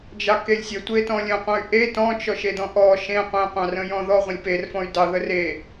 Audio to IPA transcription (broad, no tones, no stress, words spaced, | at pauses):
d͡ʒɑkelʲsʲə tʷetɔ̃lʲə̃qʷə̃y̯ ʔe tɔ̃t͡ʃɔ ʃedɔ̃ʔɔ ʃẽ qʷẽqʷɑ̃ rə̃jɔ̃ðɔ ʁʷə̃lʲperfɔ̃y̯ dɑðə re